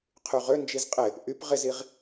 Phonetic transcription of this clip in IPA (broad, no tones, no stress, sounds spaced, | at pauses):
qʰ y ʁ ø n d͡ʒ i z qʼ ɪ | ʔ y p ʁ ɪ z i ʁ